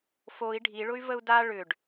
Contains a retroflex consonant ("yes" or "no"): yes